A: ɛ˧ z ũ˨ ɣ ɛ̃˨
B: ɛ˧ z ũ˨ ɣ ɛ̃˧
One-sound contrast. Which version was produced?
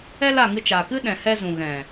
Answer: A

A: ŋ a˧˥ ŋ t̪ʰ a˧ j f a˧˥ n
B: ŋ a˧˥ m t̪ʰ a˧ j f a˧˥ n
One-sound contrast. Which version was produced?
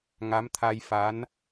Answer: B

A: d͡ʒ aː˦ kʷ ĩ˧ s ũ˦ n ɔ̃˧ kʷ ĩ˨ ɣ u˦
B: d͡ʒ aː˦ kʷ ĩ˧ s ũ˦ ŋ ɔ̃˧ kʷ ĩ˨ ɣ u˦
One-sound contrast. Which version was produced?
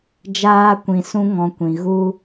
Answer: B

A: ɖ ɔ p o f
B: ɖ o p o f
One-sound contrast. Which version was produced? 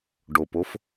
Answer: B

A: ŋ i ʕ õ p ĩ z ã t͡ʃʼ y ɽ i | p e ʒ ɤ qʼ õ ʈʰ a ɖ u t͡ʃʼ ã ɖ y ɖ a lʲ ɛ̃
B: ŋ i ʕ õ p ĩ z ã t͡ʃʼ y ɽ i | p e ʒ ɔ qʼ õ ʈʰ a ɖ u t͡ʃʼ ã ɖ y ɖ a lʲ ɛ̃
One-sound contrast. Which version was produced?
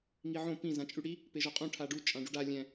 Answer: B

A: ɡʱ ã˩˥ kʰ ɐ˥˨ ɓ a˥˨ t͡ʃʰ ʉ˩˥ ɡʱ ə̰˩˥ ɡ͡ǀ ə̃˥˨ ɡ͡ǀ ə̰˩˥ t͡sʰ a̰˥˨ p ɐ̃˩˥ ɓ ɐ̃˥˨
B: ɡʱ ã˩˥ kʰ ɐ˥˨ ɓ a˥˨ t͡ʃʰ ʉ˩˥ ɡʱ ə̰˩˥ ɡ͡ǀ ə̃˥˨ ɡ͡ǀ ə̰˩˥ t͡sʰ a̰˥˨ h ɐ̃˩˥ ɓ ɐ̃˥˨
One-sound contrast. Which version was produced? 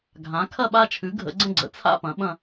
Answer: A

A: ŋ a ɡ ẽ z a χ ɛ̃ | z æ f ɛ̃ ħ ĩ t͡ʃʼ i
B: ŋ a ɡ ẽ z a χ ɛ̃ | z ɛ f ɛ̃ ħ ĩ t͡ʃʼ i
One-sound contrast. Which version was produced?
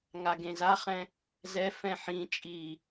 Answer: B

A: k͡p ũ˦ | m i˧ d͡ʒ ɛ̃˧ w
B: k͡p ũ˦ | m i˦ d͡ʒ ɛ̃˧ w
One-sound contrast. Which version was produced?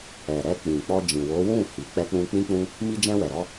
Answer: A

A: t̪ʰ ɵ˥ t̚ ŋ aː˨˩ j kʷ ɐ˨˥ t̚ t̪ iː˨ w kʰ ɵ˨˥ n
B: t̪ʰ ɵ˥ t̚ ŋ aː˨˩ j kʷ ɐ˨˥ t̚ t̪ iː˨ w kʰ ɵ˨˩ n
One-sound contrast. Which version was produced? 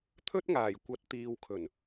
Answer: B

